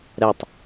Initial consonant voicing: voiced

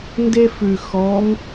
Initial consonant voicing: voiced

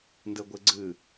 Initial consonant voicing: voiced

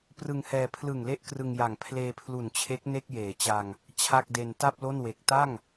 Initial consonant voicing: voiceless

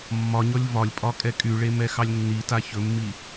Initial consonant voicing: voiced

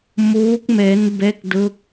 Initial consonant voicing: voiced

